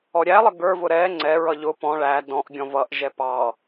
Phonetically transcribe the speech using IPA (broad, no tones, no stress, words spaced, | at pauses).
ɔɾʲælˠə ɡə˞vʊ ɾɛ ŋ͡ǀɛɹʌ ʎʊ pɔ̃ ɭæ dɔ̃ʔɡʲɔ̃ vʌʔʒɛ pɑ